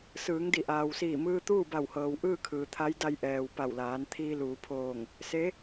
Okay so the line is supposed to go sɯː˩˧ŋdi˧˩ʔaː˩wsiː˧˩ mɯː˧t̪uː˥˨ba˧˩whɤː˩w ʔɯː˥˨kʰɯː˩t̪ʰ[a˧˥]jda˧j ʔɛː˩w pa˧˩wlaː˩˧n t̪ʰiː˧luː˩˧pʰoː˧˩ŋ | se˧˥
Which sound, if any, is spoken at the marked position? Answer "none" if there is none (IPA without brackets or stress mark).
a˧˥